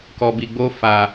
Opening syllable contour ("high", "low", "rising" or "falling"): low